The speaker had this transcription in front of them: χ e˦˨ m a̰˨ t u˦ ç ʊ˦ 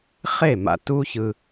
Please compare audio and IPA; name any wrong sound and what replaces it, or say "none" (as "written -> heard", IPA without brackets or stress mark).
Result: ʊ˦ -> ɯ˦